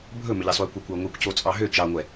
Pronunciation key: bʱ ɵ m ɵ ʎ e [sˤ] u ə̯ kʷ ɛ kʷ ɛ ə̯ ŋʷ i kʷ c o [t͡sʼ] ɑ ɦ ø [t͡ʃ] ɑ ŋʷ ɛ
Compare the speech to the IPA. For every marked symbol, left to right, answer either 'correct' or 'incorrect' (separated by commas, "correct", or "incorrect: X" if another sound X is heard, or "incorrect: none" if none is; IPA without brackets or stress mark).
correct, correct, correct